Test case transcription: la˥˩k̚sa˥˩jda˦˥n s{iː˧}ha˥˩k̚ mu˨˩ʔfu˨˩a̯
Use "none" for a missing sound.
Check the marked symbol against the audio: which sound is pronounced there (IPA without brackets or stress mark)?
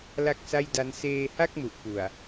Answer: eː˧